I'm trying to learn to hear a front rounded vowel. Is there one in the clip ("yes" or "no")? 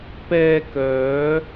yes